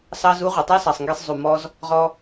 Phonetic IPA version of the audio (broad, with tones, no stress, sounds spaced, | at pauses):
s ɑ˦ z u˦ ʁʷ e˨ tˤ æ˦ s ɑ˨ sˤ ŋ ɡ e˧ sˤ zˤ u˨ m ɔ˧ z | ʁ ɔ˧